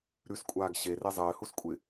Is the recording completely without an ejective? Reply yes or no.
no